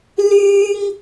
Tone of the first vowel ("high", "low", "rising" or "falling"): high